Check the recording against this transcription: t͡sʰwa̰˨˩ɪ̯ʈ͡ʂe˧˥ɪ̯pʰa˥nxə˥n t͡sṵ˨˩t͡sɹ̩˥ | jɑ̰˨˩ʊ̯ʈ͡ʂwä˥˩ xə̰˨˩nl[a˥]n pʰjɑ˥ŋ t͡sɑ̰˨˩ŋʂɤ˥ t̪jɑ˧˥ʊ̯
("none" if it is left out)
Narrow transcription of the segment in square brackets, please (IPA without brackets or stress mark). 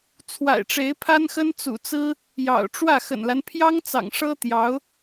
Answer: a˦